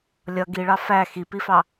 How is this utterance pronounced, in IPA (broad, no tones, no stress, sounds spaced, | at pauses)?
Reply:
lʲ ʌ ɡ i ɭ ɑ f æ x i p i f ɑ